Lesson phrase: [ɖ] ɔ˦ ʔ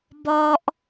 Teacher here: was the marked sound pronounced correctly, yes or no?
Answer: no